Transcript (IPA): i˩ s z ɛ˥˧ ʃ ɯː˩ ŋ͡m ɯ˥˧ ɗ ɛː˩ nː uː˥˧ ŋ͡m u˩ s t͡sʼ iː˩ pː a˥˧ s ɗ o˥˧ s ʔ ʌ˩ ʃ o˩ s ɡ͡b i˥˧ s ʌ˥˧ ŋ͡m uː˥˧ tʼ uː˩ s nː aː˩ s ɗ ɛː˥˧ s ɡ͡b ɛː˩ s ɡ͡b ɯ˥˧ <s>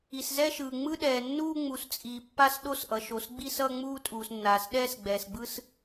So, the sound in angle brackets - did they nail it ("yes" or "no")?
yes